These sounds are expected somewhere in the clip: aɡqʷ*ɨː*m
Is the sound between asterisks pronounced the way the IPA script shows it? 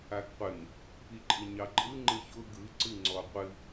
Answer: no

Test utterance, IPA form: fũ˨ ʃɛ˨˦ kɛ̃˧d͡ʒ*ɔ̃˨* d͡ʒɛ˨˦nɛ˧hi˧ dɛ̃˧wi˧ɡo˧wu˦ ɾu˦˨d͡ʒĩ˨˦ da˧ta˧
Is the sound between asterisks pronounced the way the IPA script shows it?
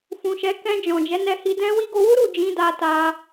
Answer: yes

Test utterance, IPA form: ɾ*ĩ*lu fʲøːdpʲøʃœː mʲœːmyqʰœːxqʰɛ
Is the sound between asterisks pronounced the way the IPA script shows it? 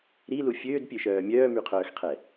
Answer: no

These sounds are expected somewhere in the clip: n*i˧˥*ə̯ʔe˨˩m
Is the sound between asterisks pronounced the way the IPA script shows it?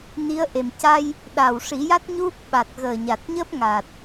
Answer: yes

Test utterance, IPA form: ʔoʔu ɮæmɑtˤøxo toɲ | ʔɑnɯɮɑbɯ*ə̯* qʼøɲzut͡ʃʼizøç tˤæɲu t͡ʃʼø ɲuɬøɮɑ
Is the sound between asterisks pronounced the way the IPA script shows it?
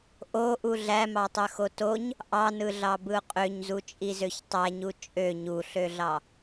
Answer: no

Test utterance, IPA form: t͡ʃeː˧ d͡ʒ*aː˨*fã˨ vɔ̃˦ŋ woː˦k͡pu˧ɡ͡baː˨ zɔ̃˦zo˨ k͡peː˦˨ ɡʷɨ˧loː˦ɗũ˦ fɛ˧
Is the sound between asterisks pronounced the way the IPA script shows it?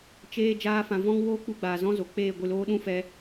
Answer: no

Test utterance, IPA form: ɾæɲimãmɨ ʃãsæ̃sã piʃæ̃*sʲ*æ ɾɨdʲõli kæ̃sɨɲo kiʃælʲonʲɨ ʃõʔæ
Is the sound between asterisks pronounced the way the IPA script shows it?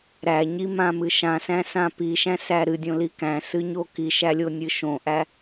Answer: no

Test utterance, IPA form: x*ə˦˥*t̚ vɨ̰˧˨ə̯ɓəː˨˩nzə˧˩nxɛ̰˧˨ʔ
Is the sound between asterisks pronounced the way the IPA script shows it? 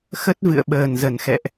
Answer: yes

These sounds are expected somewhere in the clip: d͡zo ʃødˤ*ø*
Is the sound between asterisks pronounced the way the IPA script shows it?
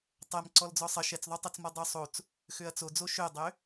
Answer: yes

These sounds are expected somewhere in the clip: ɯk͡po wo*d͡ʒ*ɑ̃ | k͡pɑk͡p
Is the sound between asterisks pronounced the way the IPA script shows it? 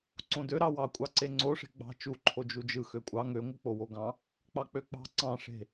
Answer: no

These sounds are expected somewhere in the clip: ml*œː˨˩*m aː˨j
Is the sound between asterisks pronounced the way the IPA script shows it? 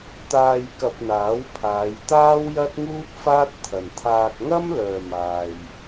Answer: yes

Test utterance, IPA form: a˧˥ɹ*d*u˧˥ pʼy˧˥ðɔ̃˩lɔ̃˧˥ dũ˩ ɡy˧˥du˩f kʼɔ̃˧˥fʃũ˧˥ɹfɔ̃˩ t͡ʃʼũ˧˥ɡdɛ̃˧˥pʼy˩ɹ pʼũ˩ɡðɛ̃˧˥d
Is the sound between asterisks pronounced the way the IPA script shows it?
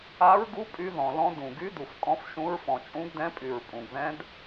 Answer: no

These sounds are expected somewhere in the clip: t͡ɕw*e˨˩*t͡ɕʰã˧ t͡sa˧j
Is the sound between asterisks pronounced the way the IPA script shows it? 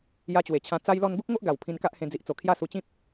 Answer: yes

